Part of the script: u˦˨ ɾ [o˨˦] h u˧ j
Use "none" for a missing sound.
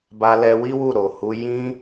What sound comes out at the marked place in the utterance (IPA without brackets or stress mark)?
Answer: o˨